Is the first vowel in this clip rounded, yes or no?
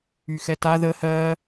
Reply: yes